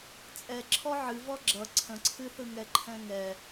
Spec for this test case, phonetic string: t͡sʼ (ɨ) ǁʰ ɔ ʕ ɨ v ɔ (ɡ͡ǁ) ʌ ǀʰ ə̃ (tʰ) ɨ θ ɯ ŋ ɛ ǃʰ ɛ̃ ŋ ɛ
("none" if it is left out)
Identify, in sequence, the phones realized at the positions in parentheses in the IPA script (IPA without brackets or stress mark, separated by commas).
ɛ, ɡ͡ǁ, ǀʰ